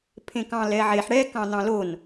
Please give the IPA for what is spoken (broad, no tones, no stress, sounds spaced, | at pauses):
pʰ ẽ k ɑ̃ l ɛ ʕ e ħ ɽ ɛ k ɑ̃ n ɑ̃ l o n